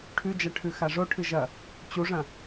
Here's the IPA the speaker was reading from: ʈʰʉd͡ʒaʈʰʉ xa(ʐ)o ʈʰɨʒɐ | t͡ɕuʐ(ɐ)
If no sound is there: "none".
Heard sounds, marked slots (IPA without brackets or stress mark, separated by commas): ʐ, ɐ̃